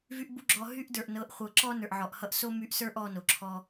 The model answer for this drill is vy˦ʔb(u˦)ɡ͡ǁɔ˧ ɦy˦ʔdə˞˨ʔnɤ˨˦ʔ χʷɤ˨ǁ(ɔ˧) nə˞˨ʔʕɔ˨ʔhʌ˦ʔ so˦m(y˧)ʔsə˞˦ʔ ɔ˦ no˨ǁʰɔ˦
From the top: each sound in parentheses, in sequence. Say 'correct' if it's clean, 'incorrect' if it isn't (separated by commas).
correct, incorrect, correct